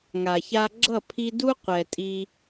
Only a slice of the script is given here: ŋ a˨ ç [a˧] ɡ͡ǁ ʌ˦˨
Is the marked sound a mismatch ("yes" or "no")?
no